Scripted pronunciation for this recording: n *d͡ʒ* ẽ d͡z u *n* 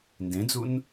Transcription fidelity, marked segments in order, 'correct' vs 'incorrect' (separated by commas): incorrect, correct